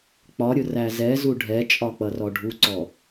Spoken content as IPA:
k͡p ɒ ɾʲ ʊ r æ z ɛ z u ɖʱ ɛ t͡ʃʼ ɒ k͡p ʌ r ɔ ɖʱ u ǀ ɔ

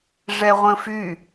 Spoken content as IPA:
ʐ ɛ ʁʷ ə̃ f y

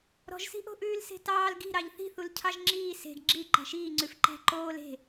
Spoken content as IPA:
ɾ ɔ̤ ʒ s i̤ ʔ o̤ ʔ ʉː l s e̤ t ɑː l ɡ i̤ ɾ ɑ ʎ θ i̤ θ u l cʰ ɑ ʒ ŋ͡ǁ iː s e̤ ɡ ɡ͡ǁ i ǃ æ̤ ʃ iː ŋ͡ǀ ʉ f ǃ æ̤ ǃ oː l e̤

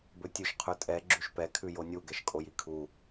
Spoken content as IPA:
b ɵ tʲ ʉ ʃ qʰ ʉ tʼ ɛ ɡ͡ǁ y ʃ p ɛ kʰ ʉ j o nʲ u ɡ ɛ ʃ kʼ o j i kʰ u

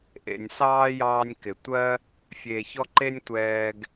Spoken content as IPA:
ʔ ḛ˧ nʲ s ɑː˦ j ɑː˧ nʲ k ɪ˨ tʷ ɜ˦ | fʲ e˨ ç ɔ˧ ǃ e˦ nʲ tʷ ɛː˧ ɡ

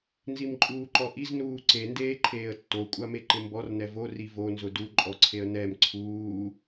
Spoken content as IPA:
n z i m ǃʼ uː ǃ ɔ ʔ i z n uː ǀ e n d eː ǃʰ eː ə̯ tː o kʷʼ a m e ǃ ɪ m b ɔ r n ɛ v o r i v o n z ʊ d u ǃʼ ɔ ǀʰ e ə̯ n ɛ m ǀʰ uː

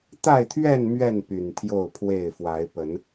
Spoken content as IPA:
t̪ a˥˨ ɪ̯ t̪ʰ ɥ ɛ˥˨ n m ɥ ɛ˥˨ n p y˨˩ n t̪ʰ j o˥˨ ʊ̯ pʰ w e˥˨ ɪ̯ f w a˨˦ ɪ̯ p ə˨˦ n

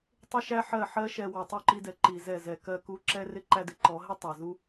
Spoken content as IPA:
tˤ ɪ˦ ʃ æ˦ ħ ɜ˦˨ ħ ɜ˦ ʃ ɛ˧ w ɔ˨ tˤ u˦˨ ǃ i˧ d ɛ˨ ǃ i˧ z ɛ˦˨ z ɛ˧ k ɜ˧ k u˧ ǁ ɛ˦ r ɪ˦ ǃ æ˧ d ɪ˨˦ ǃ ɔ˨˦ ɦ ɪ˦ tˤ æ˨ z u˦

